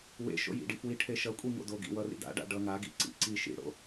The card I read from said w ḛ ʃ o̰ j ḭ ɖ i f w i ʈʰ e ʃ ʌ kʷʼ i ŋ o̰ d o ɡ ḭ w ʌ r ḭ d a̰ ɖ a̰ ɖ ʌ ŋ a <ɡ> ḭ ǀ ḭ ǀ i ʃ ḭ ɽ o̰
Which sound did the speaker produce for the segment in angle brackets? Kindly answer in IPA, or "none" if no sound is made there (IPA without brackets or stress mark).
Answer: ɡ